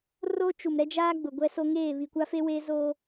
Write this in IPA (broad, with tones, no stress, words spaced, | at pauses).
ro˦ t͡ʃu˨mɾɛ˦d͡ʒaː˦ ɡ͡bʊ˨ɡʷɛ˦so˦ ŋeː˦˨βi˨kʷa˦ fe˦weː˦ zoː˦